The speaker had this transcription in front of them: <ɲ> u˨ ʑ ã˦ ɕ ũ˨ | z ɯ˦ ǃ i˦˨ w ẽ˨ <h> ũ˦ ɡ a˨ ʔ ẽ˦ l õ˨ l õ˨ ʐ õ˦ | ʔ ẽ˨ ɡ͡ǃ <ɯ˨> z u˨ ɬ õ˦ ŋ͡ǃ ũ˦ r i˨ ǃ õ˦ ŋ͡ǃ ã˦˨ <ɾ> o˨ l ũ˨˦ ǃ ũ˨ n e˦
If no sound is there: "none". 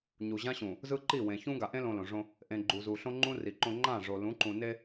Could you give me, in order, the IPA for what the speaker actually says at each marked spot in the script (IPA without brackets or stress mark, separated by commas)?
ɲ, ç, u˨, ʐ